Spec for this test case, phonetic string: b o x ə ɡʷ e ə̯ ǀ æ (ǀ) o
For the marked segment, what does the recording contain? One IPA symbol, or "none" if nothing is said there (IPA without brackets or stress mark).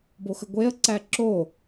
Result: ǁ